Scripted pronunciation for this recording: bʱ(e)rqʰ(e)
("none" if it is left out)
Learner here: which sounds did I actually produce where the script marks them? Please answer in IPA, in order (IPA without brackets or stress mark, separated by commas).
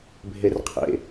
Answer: e, ḛ